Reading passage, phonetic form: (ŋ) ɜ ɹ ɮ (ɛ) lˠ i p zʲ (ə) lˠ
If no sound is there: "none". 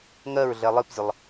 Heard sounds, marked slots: ŋ, ɛ, ə

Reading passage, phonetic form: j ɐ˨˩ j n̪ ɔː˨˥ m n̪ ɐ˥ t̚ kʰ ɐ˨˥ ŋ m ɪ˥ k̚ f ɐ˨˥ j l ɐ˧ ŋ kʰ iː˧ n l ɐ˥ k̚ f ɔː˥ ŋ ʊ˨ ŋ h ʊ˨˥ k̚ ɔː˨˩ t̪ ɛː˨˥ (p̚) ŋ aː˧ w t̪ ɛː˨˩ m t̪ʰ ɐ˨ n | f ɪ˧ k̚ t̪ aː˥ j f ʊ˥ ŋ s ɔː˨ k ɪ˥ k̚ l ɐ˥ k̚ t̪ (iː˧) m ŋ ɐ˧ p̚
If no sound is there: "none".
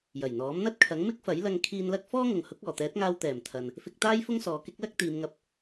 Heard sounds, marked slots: t̚, iː˨˧

